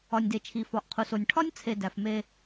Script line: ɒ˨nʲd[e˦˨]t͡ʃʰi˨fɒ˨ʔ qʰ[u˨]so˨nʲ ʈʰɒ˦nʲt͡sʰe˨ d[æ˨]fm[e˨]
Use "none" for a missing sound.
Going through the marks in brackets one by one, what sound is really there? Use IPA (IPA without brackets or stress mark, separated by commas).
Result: e˨, u˨, æ˨, e˦